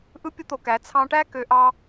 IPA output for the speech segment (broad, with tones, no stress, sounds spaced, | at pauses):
ʔ ɯ˦ pʲ o˦ t̪ o˧ k æ˨˦ t͡sʰ ɑ̃˧ ʈ æ˦ k ø˧ ʔ ɑ˦